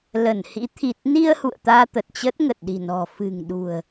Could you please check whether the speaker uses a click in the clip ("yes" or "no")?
no